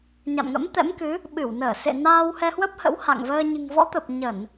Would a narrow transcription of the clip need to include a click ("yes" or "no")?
no